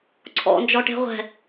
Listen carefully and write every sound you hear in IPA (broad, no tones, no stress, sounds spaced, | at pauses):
ǀʰ ɔ̰ n d͡ʒ ɔ ʈ e̤ ʁʷ ɛ̤